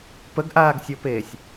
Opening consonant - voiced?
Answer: no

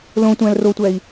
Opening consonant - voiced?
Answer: yes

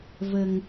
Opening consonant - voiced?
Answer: yes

